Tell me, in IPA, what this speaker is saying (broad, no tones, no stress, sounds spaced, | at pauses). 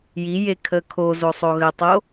j i j e kʰ ə kʰ o z o sˤ o ɣ ə tˤ o